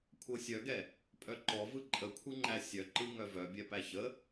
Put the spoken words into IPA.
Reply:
kʷʰ ɤ sʲ œ ɡ ɛ | pʼ œ ǃ ɔ v ɯ ǃʼ ə kʷʰ ɯ ŋ͡ǃ æ sʲ œ ǃ ɯ ŋ œ v œ bʲ ɛ p æ ç ə

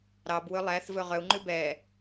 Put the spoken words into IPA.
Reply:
ɾ ɑ b w ɵ lˠ æ θ v ɵ ʁ œ u̯ ŋ͡ǃ ʉ b ɛ

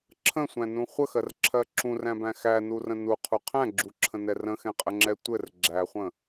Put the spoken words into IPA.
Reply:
ǁʰ ə̃ sʷ æ̃ n ũ χʷ ə x ɜ r ǁʰ ɜ ǁ ũ r æ̃ b æ̃ x æ n u r ə̃ n u qʰ u qʰ æ̃ ɡ͡ǁ u ǁʰ ə̃ n ɛ r ə̃ x ɛ̃ qʼ ə ŋ͡ǁ ɛ tʷ ɘ r ɡ͡ǁ æ χʷ ə̃

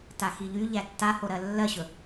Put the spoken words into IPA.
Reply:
t a x i ʎ y ʎ æ tː a h o ɾ ɜ lː ɜ ɕ ɵ

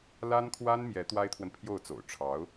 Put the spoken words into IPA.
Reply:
l a˥ n kʰ w a˥ n m j ɛ˧˥ t̪ w a˥ ɪ̯ t̪ʰ w ə˨ n pʰ j o˥˩ ʊ̯ t͡s o̰˨˩ ʊ̯ ʈ͡ʂʰ ɑ˧˥ ʊ̯

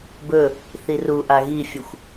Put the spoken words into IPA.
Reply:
b ɵ | θ i r u ʔ a ɣ i fʲ ə xʷ

